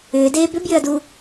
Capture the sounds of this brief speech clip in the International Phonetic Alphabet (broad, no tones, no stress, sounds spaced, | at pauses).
ʏː d eː b ʏ b j ʏ ɐ̯ d uː